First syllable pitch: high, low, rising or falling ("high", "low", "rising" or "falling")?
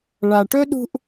low